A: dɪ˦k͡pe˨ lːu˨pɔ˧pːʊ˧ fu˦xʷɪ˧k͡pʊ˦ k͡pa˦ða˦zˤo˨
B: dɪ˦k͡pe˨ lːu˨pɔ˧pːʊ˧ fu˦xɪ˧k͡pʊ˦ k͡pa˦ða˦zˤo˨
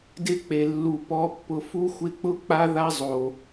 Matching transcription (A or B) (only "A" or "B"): A